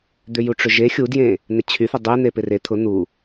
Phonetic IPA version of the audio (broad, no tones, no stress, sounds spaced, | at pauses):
d̪ ʏ j u ʈ͡ʂ ʏ ʒ e xʲ u d j ẽ | n̪ ɪ t͡ɕʰ y θ ɪ dˤ e n̪ e p ɪ r e t̪ʰ ʊ n̪ u